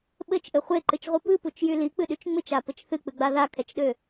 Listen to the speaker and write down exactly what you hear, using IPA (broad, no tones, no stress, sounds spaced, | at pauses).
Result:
ɓ ɘ t͡ʃ ʔ ɘ χʷ e ǃ ɨ t͡ʃ ʁʷ ɨ p ɨ p u t͡ʃ j y l i k͡p ɨ ɗ y t͡ʃ ŋ͡m ɨ t͡ʃ a p ɘ t͡ʃ θ ɨ k͡p ɨ ɡ͡b a ð a kʰ ɛ t͡ʃ ɗ ø